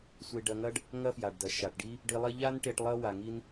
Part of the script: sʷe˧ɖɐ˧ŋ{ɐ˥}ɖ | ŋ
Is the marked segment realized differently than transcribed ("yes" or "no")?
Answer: no